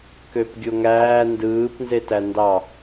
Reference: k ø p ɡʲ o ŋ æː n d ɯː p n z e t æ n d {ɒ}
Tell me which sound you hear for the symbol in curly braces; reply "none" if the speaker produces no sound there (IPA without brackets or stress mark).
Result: ɑ